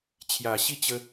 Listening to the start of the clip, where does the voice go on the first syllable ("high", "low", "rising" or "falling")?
low